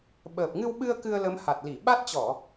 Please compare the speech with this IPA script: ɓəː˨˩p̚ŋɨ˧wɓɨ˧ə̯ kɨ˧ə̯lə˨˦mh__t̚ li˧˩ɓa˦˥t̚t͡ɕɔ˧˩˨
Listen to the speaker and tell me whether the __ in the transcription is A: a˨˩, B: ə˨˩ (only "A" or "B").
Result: A